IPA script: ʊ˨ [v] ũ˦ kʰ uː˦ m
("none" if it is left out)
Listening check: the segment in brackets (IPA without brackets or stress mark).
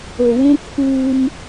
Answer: w